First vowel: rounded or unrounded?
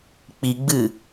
unrounded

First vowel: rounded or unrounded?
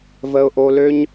unrounded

